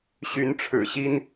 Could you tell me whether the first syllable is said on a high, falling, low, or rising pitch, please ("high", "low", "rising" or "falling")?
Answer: rising